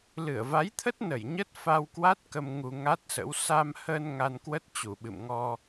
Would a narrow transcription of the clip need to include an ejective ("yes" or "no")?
no